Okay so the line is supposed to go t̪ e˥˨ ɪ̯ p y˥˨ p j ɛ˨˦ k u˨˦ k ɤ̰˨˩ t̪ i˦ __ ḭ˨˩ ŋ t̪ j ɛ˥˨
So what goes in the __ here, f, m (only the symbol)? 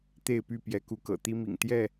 m